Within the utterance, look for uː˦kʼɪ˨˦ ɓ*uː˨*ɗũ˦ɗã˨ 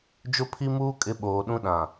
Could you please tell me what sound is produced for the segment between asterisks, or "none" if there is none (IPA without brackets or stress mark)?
oː˨